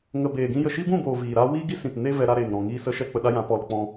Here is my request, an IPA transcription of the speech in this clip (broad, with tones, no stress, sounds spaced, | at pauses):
ŋ ə˨ b eː˨ ɡ ĩ˧ j ə˨ ʃ i˦ b ũ˦˨ b oː˨ v iː˨ ɾ aː˦ w iː˦ ɡ i˦ s ĩ˨ t n e˦ v ɛ˧ ɾ a˧ ɾ eː˨ ŋ ɾ ɔ̃˨ ŋ iː˦ s ə˦ ʃ ɛ˦ k͡p ə˧ ɗ a˦ j ã˨˦ p ɔ˧ l k͡p ɔ̃˦